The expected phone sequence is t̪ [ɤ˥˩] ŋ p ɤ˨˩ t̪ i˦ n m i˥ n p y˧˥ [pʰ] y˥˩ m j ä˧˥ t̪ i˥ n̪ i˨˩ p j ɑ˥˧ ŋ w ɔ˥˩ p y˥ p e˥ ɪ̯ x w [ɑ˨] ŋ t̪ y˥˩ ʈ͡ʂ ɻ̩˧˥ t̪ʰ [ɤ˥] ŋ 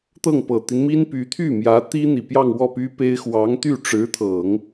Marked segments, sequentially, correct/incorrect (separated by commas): correct, incorrect, incorrect, incorrect